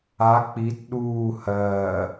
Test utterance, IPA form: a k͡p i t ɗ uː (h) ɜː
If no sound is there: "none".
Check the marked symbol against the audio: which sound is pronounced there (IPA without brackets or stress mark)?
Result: h